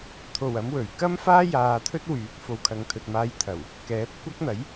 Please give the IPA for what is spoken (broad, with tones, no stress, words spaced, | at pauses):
t̪ʰo˨˩wɐ˨˧m wɵ˨˩ɥ kɐ˥m faː˥jaː˨ t̪ʰɵ˥t̚wyː˨˥k̚fo˨w kʰɐ˨ŋt̪ʰɵ˨t̚maː˧j t̪ʰɐ˨˩w | kɛː˨˥p̚ kʷɐ˥k̚n̪ɐ˨˥j